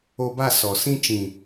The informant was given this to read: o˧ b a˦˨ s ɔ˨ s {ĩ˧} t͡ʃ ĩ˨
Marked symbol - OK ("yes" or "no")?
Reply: yes